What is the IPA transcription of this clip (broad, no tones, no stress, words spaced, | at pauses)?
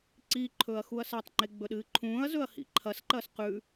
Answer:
ǀi ǃʰɵːɐ̯xuɐ̯satˤŋ͡ǃe ɡ͡bɵɗɨːǃʰũːɐ̯zɵɐ̯ hḭǃʰɐsǃɐːs qʉ